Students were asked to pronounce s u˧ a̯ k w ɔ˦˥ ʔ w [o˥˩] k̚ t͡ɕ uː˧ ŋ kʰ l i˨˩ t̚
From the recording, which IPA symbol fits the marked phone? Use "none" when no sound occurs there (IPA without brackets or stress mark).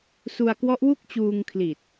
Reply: u˥˩